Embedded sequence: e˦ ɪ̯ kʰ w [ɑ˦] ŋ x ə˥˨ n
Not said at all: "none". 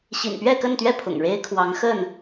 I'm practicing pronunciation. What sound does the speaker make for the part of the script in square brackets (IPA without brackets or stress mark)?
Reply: ɑ˨˦